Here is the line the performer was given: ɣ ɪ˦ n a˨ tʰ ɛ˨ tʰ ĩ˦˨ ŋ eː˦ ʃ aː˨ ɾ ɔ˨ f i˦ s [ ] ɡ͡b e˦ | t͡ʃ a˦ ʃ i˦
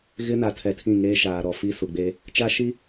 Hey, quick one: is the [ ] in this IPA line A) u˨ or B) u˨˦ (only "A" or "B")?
A